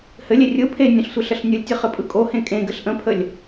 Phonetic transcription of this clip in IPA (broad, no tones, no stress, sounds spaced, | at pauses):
h ɘ lʲ e rʲ ɯ pʰ e nʲ ə̃ ɬ sʷ ɘ ɬ ə ɬ nʲ ɯ lʲ tʲ ɘ χ ɘ pʼ ɯ kʼ o h ẽ kʼ ẽ ɡ ɘ ɬ ʔ ə̃ pʰ ə lʲ